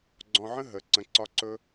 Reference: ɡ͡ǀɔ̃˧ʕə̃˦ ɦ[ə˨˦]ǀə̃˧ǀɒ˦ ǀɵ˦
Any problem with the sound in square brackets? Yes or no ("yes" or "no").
no